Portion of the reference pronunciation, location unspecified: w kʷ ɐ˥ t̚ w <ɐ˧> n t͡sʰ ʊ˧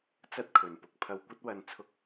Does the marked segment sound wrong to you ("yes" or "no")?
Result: no